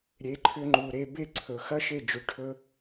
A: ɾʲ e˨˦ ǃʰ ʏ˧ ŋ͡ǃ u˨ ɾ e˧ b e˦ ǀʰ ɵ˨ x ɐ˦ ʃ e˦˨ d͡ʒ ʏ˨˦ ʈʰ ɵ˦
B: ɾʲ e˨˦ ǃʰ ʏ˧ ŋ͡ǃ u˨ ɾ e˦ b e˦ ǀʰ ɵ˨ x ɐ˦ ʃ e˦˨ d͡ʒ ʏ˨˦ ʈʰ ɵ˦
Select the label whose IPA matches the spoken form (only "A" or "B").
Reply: A